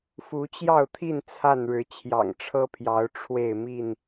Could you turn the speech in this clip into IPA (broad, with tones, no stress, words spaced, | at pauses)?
fu˨˦t͡ɕjɑ˥˨ʊ̯t̪ʰi˥˨n t͡sʰa˥˨nɻɻ̩˨˦ t͡ɕʰjɑ̰˨˩ŋʈ͡ʂʰɤ˦pʰjɑ˨˦ʊ̯ ʈ͡ʂʰwe˥˨ɪ̯ mi˥˨n